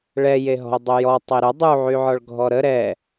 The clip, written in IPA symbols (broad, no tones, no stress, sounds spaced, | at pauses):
ɭ ɛ j e ɦ ɔ̤ ʊ̯ dˤ ø j ɔ tˤ e ɾ ə dˤ u ʕ y ʕ ɔ ɭ ɡʱ ɔ ɾ ə ɾ ɛ